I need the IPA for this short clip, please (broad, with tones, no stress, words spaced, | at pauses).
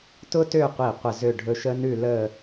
tʊ˥tø˥˧qʷi˧˩ qʷə˥˧ zø˥˧ ɖʱɵ˧ ʃə˥nʉ˥˧ lə˥˧